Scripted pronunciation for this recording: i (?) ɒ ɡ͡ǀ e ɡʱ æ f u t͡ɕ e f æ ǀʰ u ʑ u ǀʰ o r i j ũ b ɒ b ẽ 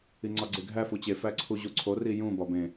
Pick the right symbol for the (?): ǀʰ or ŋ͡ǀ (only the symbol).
ŋ͡ǀ